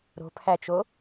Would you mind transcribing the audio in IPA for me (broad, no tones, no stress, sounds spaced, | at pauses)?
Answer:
ɾ o̤ pʰ æ t͡ʃ o